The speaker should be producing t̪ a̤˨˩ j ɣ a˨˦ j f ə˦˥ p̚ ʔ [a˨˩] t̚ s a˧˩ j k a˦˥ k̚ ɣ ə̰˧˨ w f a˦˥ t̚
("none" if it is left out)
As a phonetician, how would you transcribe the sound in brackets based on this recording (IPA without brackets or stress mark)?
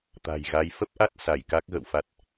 a˦˥